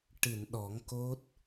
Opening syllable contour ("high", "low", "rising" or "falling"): low